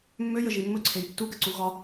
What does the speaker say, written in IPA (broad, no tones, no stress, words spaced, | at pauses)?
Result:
mːøjəʒi mːɵǀʰej tːuɡəǀu ɣɒ